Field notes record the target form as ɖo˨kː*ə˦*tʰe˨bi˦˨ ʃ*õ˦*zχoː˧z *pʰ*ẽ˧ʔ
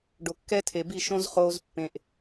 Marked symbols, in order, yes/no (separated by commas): no, yes, no